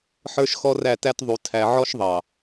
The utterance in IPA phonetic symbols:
ħ ə˞˦ ʃ x ɔ˦ r æ˦˨ t æ˦ t ðˤ u˨ tʰ æ˨ ʕ ɔ˦ ʃ ðˤ ɑ˨

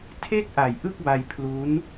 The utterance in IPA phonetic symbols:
tʰ e˥˩ k̚ ʔ a˨˩ j ʔ ɯ˥˩ k̚ b a˧ j pʰ l u˦˥ n

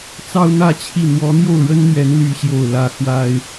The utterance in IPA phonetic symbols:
t͡s ɑ˥ ʊ̯ n̪ ä˥ t͡ɕʰ i˥˩ n̪ w ɔ˧˥ n̪ j o˥˩ ʊ̯ ɻ ə˥ n n̪ ɥ ɛ˧˥ n l y˥ ɕ j o˥˩ ʊ̯ l ä˥ x w a˥ ɪ̯

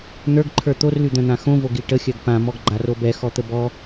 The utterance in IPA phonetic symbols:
n̪ ə˞ ɡ ǃʰ ə˞ t̪ o r l y d̪ œ̃ n̪ ã x õ v o ɡ i ʈ ə xʲ œ ɡ p ã m ɔ ɡ ɡ͡ǃ a r o b ɛ x ɔ t̪ ə b ɔ

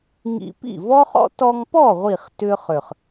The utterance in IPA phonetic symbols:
ŋ ḭ˧ p ḭ˥˩ v ɔ˥ χ ɔ̰˥ t ɔ˧ ŋ p ɔ˥˩ ʁʷ i˧˩ χ t ʏ˥ χ ʏ˧˩ χ

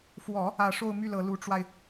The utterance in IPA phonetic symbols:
f w ɔ˨˩˦ | ä˨˩ ʂ o˥˧ ʊ̯ m y˥˩ l ɤ˨˩ l u˧˥ ʈ͡ʂ w a˧ ɪ̯

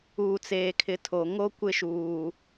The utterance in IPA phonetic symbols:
uː˨ t͡s eː˨ kʰ ɪ˨˦ tʰ o˨ ŋ o˦ kʷ ɪ˦ ʃ uː˨

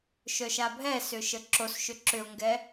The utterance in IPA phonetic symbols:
ʃ œ ʃ a bʱ ɛ s ʏ ʃ ə ǁ o s ʃ ʏ ǁ ʏ ʊ̯ ŋ ɡ ɛ

